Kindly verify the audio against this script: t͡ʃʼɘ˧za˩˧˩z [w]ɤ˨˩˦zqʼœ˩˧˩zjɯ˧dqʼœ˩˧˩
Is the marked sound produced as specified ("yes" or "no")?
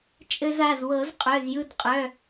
yes